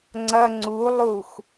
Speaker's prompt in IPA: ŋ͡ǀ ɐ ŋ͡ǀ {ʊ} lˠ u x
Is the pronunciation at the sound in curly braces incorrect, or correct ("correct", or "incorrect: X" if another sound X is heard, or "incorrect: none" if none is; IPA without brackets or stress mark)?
incorrect: u